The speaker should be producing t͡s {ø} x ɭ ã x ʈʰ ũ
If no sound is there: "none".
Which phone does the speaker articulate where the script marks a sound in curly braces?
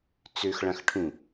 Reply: ø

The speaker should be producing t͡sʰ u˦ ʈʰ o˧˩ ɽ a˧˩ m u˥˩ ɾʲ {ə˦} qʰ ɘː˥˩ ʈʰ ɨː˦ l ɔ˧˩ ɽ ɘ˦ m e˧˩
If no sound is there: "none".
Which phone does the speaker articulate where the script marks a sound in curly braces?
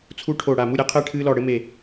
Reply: ɛ˦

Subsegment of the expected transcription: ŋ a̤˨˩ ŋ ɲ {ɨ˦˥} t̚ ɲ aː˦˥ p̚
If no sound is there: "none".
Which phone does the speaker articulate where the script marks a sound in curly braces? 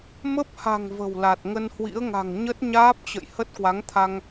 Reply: ə˦˥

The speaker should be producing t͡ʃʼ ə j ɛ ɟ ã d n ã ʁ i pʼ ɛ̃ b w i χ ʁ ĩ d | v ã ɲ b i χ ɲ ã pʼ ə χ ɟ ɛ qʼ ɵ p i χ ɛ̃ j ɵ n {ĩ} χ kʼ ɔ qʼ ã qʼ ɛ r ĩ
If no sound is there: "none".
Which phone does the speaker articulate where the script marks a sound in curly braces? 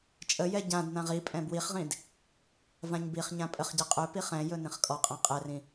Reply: ĩ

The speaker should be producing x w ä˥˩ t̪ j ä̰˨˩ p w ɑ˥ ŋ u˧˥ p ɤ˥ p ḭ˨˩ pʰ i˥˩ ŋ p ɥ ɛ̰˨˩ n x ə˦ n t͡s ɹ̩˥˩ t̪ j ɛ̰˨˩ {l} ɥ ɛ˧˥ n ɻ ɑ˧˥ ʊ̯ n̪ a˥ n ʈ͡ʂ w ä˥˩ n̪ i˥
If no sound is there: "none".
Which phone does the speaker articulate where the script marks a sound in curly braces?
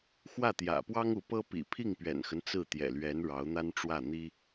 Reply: l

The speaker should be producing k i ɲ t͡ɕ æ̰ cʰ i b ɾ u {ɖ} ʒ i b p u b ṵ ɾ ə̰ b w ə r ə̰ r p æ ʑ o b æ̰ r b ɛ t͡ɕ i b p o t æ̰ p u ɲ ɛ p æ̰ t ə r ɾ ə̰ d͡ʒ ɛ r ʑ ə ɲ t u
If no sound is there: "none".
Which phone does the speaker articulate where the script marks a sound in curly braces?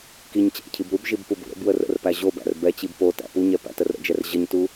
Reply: b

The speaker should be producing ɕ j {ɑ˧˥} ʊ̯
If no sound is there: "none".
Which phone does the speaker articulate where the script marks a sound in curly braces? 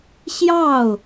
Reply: ɑ˥˩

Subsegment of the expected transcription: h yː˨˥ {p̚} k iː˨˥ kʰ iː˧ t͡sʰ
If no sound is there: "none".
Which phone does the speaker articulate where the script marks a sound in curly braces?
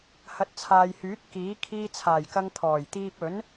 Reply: t̚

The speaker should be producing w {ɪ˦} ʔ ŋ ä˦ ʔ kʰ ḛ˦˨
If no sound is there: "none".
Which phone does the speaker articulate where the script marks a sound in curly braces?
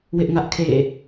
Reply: ɪ˦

